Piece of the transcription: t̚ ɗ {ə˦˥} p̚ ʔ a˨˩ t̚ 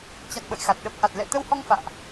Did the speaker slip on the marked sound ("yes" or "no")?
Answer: no